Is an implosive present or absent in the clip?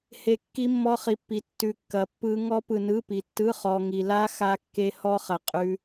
absent